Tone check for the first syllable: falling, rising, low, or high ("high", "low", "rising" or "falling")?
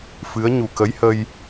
rising